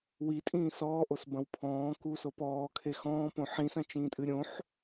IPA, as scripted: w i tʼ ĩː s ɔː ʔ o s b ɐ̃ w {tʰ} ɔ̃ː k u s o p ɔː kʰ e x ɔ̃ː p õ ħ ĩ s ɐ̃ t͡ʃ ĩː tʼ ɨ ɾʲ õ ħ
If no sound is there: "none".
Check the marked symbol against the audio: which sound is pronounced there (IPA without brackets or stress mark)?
pʰ